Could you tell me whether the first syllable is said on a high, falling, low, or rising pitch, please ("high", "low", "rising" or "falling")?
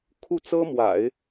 falling